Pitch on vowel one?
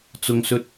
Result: low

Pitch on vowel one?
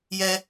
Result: high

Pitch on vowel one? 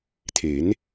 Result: rising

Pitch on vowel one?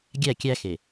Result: falling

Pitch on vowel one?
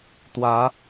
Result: rising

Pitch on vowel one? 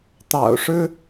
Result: low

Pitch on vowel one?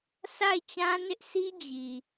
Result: falling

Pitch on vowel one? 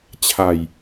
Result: low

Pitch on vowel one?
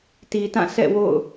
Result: low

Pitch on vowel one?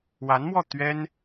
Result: rising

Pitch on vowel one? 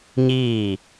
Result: falling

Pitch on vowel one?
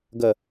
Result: low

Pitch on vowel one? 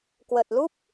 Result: low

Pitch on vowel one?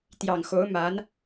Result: low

